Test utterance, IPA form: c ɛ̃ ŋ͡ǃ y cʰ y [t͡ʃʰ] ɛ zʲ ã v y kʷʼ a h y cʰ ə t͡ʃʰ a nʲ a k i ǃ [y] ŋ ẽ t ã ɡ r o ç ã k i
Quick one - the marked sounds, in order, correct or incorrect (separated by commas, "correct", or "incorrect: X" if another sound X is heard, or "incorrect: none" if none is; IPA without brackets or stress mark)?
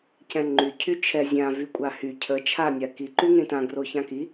correct, correct